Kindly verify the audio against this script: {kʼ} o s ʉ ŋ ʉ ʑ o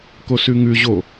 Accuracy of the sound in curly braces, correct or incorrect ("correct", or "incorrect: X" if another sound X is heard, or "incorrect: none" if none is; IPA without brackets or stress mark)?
incorrect: k